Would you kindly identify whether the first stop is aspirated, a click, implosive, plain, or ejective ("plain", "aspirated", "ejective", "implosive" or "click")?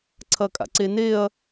click